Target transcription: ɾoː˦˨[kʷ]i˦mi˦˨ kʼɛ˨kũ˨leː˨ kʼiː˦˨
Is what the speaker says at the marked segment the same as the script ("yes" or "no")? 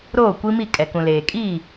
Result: yes